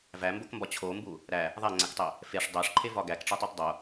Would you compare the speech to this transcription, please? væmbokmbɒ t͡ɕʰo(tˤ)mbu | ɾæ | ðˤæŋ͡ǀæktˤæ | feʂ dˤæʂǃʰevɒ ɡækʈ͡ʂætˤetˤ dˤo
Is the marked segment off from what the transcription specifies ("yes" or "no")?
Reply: yes